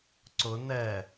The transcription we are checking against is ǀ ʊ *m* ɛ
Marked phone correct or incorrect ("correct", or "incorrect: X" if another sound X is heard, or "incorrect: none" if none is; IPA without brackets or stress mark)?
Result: incorrect: n